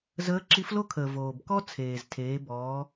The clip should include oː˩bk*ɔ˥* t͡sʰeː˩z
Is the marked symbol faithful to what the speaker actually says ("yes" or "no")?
yes